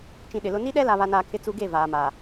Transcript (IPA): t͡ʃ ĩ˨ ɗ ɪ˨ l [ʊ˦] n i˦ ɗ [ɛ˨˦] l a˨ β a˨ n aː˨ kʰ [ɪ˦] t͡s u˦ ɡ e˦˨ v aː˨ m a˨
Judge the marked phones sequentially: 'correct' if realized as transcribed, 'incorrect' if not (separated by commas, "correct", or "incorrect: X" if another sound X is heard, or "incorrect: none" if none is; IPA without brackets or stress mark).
correct, incorrect: ɛ˦, correct